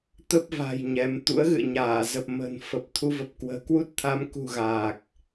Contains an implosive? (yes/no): no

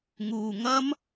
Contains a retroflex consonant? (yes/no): no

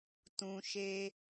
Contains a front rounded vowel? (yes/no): no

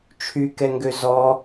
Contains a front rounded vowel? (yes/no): yes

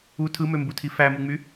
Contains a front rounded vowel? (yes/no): yes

